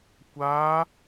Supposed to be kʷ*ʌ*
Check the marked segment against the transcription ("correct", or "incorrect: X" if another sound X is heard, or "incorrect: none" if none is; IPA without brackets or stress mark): incorrect: a